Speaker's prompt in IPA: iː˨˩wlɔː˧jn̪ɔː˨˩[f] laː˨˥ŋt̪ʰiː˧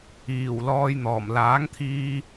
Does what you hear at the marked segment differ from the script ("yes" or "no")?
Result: yes